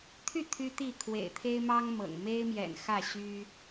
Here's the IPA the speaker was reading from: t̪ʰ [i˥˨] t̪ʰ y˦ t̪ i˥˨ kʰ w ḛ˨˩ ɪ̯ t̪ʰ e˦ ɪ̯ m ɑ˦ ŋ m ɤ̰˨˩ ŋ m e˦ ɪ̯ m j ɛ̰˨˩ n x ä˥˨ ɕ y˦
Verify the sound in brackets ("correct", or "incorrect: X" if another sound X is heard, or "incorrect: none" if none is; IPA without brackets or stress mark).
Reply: incorrect: y˥˨